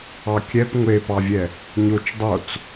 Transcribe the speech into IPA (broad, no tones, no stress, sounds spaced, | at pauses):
ɑ kʲ ɛ p ŋʷ e p ɑ vʲ ɛ | ɲ o t͡ʃ dˤ o t͡s